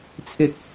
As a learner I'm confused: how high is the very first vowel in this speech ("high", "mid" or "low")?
high